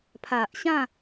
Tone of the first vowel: low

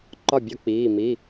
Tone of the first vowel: falling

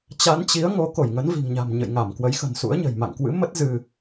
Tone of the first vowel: rising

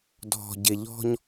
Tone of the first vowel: low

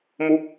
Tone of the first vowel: falling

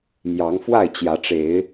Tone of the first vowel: rising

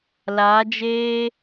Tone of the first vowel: rising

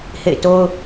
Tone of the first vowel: falling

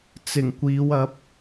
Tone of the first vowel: low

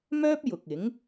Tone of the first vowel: high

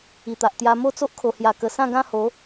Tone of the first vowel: low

